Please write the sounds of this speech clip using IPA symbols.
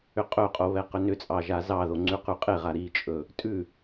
ʏ qʼ ɵ qʼ o β ɛ q ʏ n ʏ t͡sʼ ɑ ʒ a z ɑ ð o ŋ͡ǀ ʉ q ʉ qʼ e ʁ a ɾ i t͡ʃʼ ɵ | tʼ ʉ

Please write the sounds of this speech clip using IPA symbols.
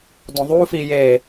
d õ ðˤ u f i j e

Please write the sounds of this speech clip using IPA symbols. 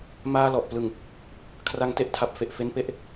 m aː˧ l ɔ˨˩ ʔ p l ɯ˨˩ ŋ | kʰ r a˧ ŋ t e˦˥ ʔ tʰ a˨˩ p̚ f e˨˩ ʔ f e˦˥ n p e˦˥ ʔ

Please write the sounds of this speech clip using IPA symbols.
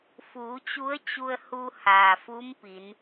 f uː˩˧ t͡ɕ u˧˥ ə̯ t͡ɕ u˧ ə̯ h u˧ h aː˩ f u˧˥ m p i˩˧ n

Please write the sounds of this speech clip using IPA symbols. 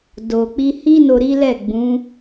d o˨ k͡p i˧ h i˦ n o˧ ɾ i˦ l ɛ˦˨ ɡ͡b ũ˨˦

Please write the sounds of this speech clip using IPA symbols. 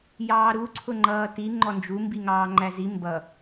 j ɑː ɾ u ǀʰ ʊ ŋ͡ǃ ʌː t i ŋ͡ǃ ɔ n d͡ʒ u m b i ŋ ɑː ŋ͡ǃ æ z i m b ʌ

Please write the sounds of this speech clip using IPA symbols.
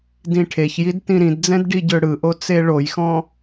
d ĩ ʈʰ e ç j i d t ĩ ɾ ĩ d d͡z ɛ̃ d ɖ i ɟ ø ɽ ɯ ʔ o t͡s e ɭ o j x ɔ̃

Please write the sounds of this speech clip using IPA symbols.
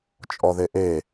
t͡ʃʼ ɔ ð e ʔ e

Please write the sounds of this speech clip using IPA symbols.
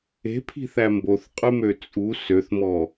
e̤ pʰ i̤ θ æ m b o θ qʼ ʉ m ø t͡sʼ u s ø θ m ɔ

